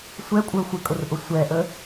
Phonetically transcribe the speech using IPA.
sʷ ɛ kʷʼ ə˞ xʷ ɪ kʼ ʊ r ʔ ʊ sʷ ɛ ʔ ə

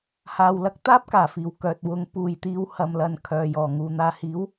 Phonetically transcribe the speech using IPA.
h aː˨ w l ɐ˨˥ k̚ t̪ aː˥ p̚ k aː˨˩ f iː˨˩ w k œː˨ t̚ w ʊ˨˥ ŋ p uː˨ j t̪ iː˧ w h ɐ˨ m l ɐ˨ n kʰ œː˨ j ɔː˨˩ ŋ uː˨ n̪ aː˨ h iː˨˥ w

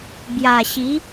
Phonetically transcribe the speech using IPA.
b j a˨˩ ɕ i˨˦

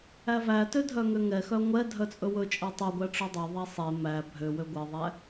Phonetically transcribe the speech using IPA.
æ v æ t ø dʱ œ ŋ ø ŋ ɛ x œ ŋʷ ɛ dʱ œ t͡sʼ ɵ w ɵ t͡ʃʼ æ tˤ ɵ ɡʷ æ ʈ͡ʂ ɵ dˤ ɵ ðˤ æ sˤ e m æ bʱ ø w ø ɡʷ ɛ ðˤ æ

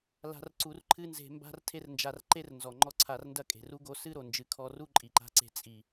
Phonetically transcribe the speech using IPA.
l a̤˧ r ǀ u˧ r ǃʰ ɨ˦ n z e̤˧ m b a̤˦ r tʰ e˦ r n d͡ʒ a˧ r ǃ e˦ r n z ɔ˨ ŋ͡ǃ ɔ˦ ǀʰ a˧ r n d ɐ˦ kʼ e̤˨ r u˦ ɡ o˦ s ɨ˦ ɾ o˨ n d͡ʒ ɨ˨ kʰ ɔ˧ r u˦ ǃʼ i˨ ǃ a̤˧ ǀ e̤˧ t͡sʼ i˨

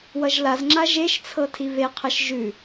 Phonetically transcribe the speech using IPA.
w ʌ ʒ l a z ŋ͡ǁ a ʒ e ʃ t͡sʰ ɤ tʰ i v e qʰ ɐ ʃ ʒ ʉ

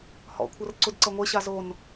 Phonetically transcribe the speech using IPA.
h ɔ̰ kʷʰ ɤ r ǀ u d ǀ ɤ ŋʷ e ɕ a z o n

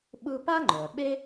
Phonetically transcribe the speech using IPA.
ɓ ɯ˦ p a˥ ŋ͡ǃ œ˩ ɓ e˥

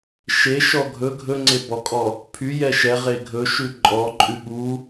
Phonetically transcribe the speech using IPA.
ʃ e ʃ ɔ ɡʱ ɵ ɡʱ ɵ ŋ͡ǀ e b ɔ kʼ ɔ | pʰ y j ɛ ʃ ɛ ʁ e ɡʱ ɵ ʃ ʉ ǃʼ ɔ ǃʼ ʉ ɠ u

